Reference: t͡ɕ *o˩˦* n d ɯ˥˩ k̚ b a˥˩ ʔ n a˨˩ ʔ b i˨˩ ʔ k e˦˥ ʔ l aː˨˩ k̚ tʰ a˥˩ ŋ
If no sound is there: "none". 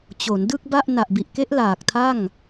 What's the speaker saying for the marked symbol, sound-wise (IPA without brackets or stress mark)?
o˩˦